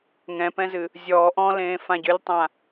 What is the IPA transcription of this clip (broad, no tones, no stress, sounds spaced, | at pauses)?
ŋ ɛ̃ p ɛ̃ z ɨ | zʲ ɔː ʔ ɔ̃ l ẽː f ã ɟ ʏ lʲ tˤ ã